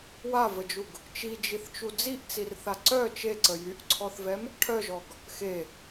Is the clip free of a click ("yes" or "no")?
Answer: no